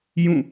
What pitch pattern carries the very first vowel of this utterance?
falling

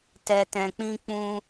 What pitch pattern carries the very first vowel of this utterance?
low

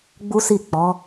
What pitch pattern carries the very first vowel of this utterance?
high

